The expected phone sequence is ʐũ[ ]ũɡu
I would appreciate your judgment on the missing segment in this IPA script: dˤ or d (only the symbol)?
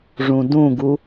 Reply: d